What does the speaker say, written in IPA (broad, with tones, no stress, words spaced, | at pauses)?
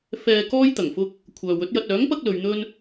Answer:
fɛː˧ kɔː˥jt̪ɐ˨˩ŋfʊ˥k̚ | kʷʰœː˨wɵ˨˥t̚jɐ˧t̚ œː˨˥ŋ pɐ˥k̚lɵ˨˧ɥn̪ɵ˥n